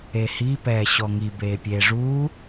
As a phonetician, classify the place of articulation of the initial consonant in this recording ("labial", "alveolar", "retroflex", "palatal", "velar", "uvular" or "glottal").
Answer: glottal